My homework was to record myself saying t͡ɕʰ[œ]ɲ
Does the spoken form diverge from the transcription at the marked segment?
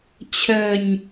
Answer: no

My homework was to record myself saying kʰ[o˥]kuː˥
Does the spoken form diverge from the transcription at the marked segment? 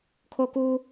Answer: no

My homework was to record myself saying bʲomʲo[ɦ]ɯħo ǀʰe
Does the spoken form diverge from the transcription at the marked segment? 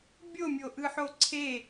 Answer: yes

